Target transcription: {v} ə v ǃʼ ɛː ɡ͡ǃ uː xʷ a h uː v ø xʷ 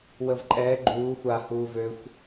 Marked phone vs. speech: incorrect: w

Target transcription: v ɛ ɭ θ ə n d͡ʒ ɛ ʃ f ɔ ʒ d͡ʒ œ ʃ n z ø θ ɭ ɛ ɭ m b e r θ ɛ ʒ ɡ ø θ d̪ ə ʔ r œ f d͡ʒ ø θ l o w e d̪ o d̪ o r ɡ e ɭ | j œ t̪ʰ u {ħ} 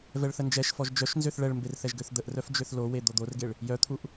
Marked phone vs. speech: incorrect: ʔ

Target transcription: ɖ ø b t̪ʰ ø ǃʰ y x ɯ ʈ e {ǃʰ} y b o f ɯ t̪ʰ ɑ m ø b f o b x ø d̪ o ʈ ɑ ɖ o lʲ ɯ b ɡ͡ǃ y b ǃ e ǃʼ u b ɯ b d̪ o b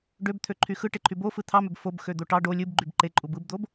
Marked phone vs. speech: correct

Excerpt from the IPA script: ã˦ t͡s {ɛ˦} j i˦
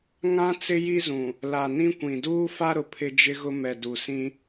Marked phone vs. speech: incorrect: ɪ˦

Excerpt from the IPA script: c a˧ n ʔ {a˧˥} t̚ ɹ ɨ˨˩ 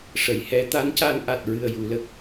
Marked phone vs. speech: incorrect: a˨˩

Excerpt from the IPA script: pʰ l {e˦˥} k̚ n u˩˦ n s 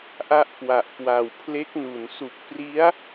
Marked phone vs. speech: correct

